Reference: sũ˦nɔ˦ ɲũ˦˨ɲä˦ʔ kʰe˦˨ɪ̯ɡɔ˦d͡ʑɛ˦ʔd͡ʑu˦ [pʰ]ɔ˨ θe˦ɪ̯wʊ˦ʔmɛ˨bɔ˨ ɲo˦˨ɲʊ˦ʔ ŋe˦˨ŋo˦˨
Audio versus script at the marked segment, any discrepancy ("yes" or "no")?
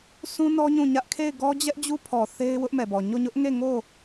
no